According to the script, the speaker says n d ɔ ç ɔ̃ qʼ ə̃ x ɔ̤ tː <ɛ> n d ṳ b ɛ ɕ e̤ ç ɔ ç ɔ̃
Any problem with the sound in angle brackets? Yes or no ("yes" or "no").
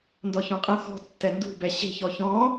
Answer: no